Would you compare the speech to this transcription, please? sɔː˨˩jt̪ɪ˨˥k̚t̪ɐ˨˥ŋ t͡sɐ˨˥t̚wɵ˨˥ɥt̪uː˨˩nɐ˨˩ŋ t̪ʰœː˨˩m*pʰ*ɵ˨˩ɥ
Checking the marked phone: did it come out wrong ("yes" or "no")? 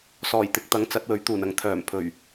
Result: no